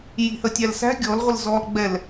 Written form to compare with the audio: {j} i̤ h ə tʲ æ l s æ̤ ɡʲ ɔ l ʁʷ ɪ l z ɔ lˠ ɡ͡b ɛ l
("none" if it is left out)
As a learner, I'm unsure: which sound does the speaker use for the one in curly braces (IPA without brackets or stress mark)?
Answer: j